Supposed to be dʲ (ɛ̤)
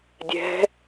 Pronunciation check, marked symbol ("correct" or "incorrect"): correct